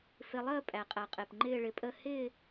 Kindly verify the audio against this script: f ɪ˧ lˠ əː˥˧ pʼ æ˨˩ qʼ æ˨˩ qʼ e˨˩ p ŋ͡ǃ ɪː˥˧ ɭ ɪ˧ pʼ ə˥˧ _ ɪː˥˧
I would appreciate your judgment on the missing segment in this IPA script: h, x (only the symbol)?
h